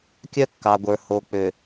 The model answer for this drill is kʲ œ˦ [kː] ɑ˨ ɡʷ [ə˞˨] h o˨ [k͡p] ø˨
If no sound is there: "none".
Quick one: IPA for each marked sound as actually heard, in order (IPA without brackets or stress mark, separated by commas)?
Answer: kː, ə˞˨, k͡p